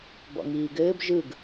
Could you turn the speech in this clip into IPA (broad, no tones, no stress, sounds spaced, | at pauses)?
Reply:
b ɔ̰ ŋ iː ɡ ɘː b ʒ ɯ ɡ